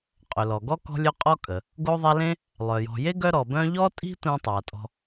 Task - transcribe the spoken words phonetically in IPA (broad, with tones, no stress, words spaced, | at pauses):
qʼɵ˩lɔ˩ɡɔ˥ kɔ̤˦lʲɵ˦ qʼɔ˦ kʼə˩ | ɡo˦ðˤa˦lẽ˥ | lˠœ˩jɔ̤˨ je˥ɡœ˦ ɾɔ˩bœ̃˦ʎɔ˥tʼi̤˥ tʷẽ˥tˤa˩tʼɔ̤˦